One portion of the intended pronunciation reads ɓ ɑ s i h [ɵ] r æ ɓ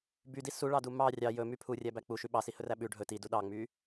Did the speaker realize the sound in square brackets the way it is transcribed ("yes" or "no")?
yes